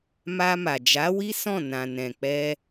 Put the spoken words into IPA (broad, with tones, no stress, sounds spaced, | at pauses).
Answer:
m a˧ m a˨ d͡ʒ a˨˦ w i˦ s ɔ̃˦˨ n ã˨ n ɛ̃˨ k͡p ɛ˧